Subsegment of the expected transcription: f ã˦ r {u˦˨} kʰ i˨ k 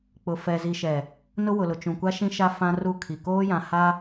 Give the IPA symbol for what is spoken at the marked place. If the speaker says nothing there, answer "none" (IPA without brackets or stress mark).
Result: u˦˨